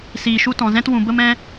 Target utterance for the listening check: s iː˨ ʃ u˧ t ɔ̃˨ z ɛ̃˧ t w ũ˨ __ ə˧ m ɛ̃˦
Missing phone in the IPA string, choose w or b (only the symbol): b